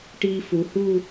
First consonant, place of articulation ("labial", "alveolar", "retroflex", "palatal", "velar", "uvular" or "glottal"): retroflex